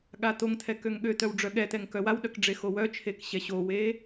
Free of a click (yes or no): yes